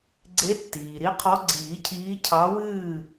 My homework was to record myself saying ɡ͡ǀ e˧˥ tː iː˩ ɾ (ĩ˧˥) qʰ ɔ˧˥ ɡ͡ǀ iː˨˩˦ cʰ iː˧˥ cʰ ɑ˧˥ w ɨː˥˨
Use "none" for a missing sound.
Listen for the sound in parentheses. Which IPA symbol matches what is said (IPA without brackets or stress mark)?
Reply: i˧˥